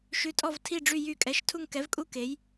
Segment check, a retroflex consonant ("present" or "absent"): present